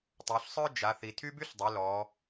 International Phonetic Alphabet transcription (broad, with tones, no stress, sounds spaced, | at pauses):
tˤ ø˩˧ ɬ sˤ œ˥ d͡ʒ a˩˧ θ i˩ tʰ y˥ b y˥ ɬ dˤ ø˩˧ l ɔ˩˧